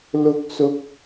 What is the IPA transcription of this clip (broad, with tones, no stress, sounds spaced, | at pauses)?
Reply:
l ʊ˧ k̚ s ʊ˧ k̚